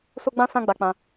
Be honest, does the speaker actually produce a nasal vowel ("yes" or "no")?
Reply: yes